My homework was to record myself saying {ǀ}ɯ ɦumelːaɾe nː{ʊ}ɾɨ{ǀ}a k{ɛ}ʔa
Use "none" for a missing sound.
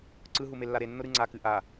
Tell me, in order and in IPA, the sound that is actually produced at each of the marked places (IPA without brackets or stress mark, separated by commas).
ǀ, ʊ, ŋ͡ǀ, ɨ